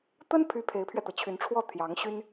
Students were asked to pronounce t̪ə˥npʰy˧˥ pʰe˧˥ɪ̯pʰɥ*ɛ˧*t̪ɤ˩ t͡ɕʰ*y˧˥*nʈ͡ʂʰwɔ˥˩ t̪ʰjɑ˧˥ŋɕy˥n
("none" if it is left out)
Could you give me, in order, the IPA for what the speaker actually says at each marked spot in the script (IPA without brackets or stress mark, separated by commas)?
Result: ɛ˧, y˧˥